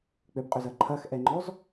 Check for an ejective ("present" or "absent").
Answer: present